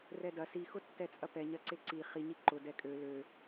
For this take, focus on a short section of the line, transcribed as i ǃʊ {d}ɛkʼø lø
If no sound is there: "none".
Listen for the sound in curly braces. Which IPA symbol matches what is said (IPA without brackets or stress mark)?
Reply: d